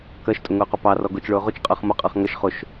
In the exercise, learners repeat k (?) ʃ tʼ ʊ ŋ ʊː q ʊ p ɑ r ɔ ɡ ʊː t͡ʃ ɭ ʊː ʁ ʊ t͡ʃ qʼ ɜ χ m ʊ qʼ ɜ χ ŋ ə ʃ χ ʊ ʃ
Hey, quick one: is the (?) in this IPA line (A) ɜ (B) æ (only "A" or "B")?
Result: A